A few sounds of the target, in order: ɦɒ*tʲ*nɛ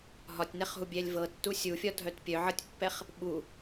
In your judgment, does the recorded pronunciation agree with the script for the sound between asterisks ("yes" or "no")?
yes